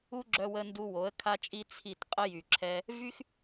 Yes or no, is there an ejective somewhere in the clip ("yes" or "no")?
yes